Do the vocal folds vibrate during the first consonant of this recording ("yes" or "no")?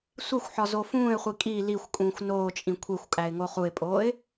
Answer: no